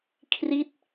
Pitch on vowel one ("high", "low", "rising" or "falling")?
falling